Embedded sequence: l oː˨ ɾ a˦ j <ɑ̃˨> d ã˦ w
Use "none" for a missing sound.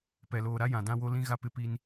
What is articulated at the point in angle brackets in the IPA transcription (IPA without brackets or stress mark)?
ã˨